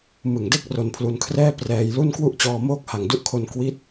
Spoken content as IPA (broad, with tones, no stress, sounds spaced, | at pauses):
m ɯ˨˩ ŋ d e˥˩ k̚ r o˧ n pʰ l u˧ n kʰ r ɛː˥˩ p r ɛː˧ j l u˥˩ n k w u˥˩ ʔ t͡ɕ ɔː˧ m oː˥˩ k̚ h a˨˩ ŋ d u˦˥ ʔ kʰ o˧ n k w i˦˥ t̚